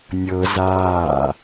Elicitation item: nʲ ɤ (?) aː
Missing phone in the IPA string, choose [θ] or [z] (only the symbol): z